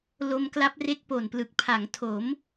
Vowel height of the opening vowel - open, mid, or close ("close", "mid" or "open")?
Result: mid